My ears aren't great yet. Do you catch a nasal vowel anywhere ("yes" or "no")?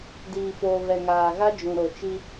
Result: yes